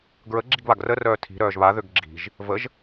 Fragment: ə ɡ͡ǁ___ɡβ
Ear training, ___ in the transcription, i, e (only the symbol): i